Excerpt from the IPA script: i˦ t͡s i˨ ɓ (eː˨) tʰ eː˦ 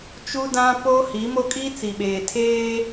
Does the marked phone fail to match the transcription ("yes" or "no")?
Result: no